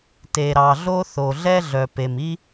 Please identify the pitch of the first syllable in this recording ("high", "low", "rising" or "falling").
low